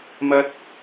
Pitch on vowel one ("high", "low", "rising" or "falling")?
high